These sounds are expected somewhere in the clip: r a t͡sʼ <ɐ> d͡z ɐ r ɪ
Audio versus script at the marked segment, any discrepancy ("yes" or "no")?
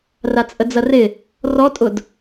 yes